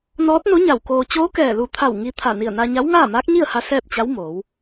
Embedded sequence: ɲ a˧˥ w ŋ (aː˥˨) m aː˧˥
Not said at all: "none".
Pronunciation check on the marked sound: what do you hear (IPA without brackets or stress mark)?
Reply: aː˥˨